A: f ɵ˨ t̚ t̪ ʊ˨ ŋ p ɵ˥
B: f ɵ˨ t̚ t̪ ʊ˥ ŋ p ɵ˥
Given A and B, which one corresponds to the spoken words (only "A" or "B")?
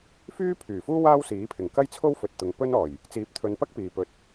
A